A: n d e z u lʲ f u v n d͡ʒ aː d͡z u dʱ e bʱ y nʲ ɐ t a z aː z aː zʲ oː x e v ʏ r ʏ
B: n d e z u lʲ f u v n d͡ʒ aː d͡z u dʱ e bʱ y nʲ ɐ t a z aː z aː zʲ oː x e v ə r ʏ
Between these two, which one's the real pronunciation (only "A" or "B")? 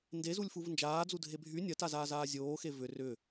A